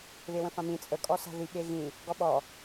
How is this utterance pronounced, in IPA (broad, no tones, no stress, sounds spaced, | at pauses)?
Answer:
β e w ə̃ f ã m ĩ t͡sʼ ə kʼ ɔ s a̤ ð i ɠ e ɣ ĩ | ɡ ɔ ɓ ɔ